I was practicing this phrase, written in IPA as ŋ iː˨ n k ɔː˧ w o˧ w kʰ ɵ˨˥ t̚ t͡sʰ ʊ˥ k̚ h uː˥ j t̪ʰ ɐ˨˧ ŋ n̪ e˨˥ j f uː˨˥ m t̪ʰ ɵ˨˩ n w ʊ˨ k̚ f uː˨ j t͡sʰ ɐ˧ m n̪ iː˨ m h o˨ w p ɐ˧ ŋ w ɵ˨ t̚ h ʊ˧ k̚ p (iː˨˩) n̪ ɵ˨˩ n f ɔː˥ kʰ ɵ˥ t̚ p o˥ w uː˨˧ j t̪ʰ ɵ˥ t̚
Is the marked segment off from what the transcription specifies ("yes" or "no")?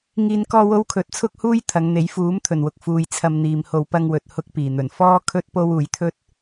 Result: no